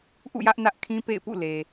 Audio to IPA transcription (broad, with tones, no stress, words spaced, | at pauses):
ʔṵ˦˨jä˦ʔnä˦ʔkʰĩ˦ pḛ˦˨ɪ̯pṵ˦˨le˨